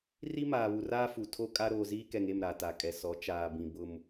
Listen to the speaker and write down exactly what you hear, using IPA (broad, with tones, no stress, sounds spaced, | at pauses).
r i˦ m aː˨ β u˨ r aː˦ f u˨ tʰ o˦ kʼ a˦ ɾ oː˨ z iː˦ k ɛ˨ ŋ e˦˨ m ɾ a˨ t a˨ kʼ ɛ˨ s ɔ˨˦ t͡ʃ aː˨ b ĩ˨ b ʊ˦ m